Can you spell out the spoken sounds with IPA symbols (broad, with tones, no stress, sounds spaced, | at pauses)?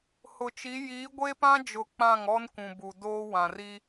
h ʊ˨ t͡ʃ i˨˦ j iː˨˦ ɡʷ e˦ p ã˦ d͡ʒ ʊ˨ k͡p ã˦˨ ŋ ɔ˦ n kʷ ũ˨ b u˨ d oː˦ w ã˨ r i˦